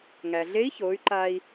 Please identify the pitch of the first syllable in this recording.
low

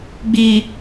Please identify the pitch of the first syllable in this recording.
low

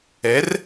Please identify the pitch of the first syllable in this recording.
rising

